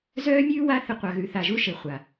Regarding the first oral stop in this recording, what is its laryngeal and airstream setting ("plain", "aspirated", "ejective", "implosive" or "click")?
plain